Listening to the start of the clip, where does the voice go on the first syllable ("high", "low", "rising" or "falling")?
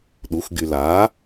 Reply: rising